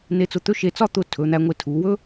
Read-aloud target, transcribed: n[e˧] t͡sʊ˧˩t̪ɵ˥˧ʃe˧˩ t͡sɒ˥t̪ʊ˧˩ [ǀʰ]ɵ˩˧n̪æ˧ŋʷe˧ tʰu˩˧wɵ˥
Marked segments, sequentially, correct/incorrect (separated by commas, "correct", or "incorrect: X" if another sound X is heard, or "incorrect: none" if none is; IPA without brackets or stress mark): correct, incorrect: tʰ